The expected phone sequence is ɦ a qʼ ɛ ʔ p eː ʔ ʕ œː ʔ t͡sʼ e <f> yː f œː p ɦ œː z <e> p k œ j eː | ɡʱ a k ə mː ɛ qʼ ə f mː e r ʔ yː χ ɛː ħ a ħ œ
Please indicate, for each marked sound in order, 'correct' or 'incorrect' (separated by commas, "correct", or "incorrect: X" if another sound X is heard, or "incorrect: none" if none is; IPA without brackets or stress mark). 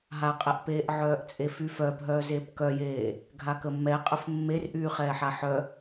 correct, incorrect: eː